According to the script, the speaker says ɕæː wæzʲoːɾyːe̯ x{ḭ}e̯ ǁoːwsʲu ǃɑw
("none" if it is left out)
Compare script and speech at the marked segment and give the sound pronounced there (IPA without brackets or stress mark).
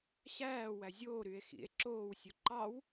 ḭ